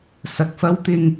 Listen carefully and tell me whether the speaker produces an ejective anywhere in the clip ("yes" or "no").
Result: no